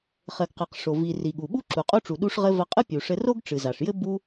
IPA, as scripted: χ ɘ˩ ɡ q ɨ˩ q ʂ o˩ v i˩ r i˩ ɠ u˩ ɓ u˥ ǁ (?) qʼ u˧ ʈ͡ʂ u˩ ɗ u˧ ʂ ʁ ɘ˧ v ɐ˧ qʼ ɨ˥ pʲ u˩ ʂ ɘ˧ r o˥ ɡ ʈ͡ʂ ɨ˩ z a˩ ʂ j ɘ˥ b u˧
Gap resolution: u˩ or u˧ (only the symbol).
u˩